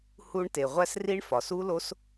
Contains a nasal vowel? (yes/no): no